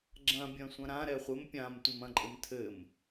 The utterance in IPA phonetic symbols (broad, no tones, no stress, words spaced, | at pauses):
ɡ͡ǁɐ̃ bʲɐ̃sʷɐ̃ɾã ɾɛχʷɘm pʲãmtʷɨm ɐ̃ǃʼɘmtʰɘm